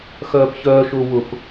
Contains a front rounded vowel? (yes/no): yes